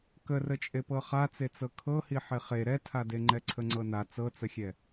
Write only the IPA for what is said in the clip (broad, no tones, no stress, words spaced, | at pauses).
kərət͡ʃʼe pɤχat͡se t͡sɤkʰɤhi ħeχe ɾɛtʰade ŋ͡ǃɛǀʰəŋ͡ǀɤna t͡sɤt͡səxʲɛ